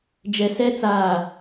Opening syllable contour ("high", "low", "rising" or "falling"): low